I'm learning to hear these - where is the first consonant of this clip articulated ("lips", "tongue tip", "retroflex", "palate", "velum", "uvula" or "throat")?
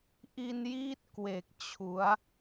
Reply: throat